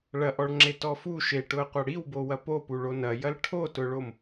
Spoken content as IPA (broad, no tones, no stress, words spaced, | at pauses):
ɭɐʔɔɭŋ͡ǁetɔ fu ʃeʈʊə̯qʷɐ ɽiwbowɐ popuɭo nɐjɐl ʈʰotʊɭom